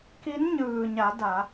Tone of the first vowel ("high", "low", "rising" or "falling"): rising